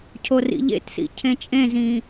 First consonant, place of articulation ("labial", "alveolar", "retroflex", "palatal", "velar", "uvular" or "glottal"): palatal